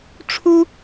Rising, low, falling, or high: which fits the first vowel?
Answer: high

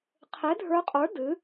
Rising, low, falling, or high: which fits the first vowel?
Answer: rising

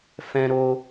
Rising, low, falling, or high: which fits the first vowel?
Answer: high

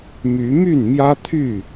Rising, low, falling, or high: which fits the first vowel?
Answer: rising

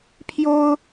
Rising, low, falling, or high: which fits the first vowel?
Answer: high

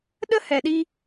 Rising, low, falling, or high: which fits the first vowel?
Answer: high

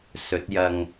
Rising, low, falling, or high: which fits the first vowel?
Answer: rising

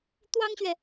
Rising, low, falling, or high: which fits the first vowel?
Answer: high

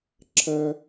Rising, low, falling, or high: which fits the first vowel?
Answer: high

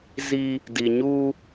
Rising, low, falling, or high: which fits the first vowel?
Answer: high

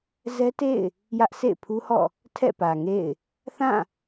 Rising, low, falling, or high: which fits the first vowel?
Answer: high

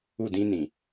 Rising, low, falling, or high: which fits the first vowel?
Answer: falling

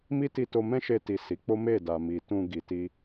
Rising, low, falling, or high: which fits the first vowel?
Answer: high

